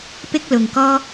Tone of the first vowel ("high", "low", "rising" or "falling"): high